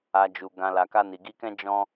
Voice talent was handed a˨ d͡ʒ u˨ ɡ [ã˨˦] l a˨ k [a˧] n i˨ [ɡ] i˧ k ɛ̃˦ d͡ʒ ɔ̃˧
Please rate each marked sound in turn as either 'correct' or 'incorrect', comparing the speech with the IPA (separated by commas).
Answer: incorrect, correct, correct